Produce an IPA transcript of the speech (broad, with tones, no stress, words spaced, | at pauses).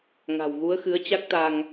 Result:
ŋa̤˨˩wɣu˨˦ə̯xɨ˨˦ə̯ t͡ɕa˦˥k̚t̪a˧ŋ